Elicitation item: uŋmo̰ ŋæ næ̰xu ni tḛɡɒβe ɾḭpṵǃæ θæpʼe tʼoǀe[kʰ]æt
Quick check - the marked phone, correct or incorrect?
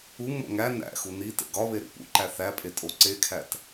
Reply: correct